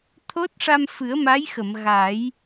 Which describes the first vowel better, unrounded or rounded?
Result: rounded